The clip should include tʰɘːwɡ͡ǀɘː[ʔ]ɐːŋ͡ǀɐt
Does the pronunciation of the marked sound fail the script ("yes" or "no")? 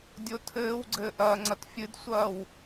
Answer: no